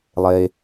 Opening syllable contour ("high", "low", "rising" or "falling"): low